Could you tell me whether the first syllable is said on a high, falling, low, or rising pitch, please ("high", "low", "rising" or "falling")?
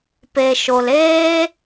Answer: low